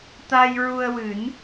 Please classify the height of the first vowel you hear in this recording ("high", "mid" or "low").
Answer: low